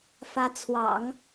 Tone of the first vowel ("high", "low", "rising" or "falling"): rising